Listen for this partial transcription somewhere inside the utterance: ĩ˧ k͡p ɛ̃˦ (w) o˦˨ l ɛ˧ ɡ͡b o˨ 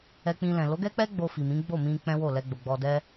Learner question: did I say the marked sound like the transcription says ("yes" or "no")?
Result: yes